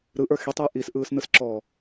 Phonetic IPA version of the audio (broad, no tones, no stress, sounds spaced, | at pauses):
ɾ ɯ ʔ ə˞ x i tˤ ɯ j ʔ i s ʔ ɯː s n ɯ s ǁ ɔː